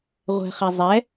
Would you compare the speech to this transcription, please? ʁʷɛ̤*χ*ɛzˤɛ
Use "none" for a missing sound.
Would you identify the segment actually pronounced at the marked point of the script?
χ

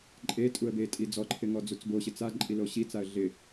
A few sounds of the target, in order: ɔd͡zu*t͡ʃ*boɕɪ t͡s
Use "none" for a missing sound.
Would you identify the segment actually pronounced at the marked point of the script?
t͡s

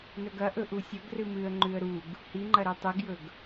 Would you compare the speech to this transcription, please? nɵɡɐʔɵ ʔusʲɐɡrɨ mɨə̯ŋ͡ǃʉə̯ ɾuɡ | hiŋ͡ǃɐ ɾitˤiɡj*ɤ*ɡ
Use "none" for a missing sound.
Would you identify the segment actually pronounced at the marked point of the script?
ɵ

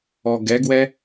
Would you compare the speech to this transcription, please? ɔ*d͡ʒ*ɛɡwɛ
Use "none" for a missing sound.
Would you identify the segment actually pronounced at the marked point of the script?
ɡ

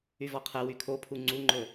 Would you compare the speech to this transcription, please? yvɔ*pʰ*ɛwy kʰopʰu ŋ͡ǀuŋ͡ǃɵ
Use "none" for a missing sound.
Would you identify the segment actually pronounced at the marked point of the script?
qʰ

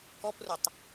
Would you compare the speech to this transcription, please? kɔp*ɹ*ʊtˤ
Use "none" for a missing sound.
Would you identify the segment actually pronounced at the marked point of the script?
r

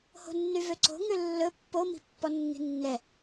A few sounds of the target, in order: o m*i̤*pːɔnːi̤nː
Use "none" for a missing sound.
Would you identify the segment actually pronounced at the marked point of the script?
i̤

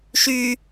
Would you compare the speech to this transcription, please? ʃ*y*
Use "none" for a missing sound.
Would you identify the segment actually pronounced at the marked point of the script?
y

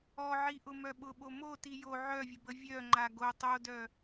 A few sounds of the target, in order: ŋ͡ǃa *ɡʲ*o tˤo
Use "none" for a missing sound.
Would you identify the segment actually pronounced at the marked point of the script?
ɡ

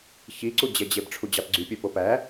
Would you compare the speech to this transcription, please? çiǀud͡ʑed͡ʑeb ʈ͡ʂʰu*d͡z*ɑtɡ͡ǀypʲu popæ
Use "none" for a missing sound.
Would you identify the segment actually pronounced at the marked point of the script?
d͡ʑ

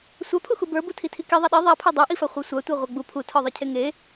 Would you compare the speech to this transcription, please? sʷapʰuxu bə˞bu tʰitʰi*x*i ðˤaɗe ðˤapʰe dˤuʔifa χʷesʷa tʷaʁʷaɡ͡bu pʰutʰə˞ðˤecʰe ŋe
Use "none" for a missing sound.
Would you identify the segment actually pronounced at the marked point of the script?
k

